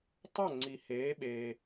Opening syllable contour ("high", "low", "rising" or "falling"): falling